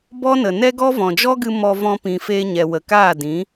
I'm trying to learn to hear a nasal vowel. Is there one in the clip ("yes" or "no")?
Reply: yes